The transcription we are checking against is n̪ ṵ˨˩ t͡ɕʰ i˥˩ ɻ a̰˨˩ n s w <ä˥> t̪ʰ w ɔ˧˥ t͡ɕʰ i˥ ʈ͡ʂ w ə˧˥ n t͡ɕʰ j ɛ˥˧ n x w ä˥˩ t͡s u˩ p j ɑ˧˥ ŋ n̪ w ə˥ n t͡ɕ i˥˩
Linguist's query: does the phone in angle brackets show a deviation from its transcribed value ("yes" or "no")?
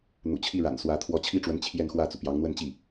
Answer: yes